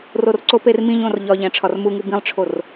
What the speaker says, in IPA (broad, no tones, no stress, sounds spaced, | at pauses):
r o r ǀ o p e r m ĩ ʎ õ r ʎ ɒ ʎ æ̃ ʈ͡ʂʰ ɒ r m u ŋ u b ĩ lˠ ʈ͡ʂʰ o r